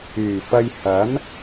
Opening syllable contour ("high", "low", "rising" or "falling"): low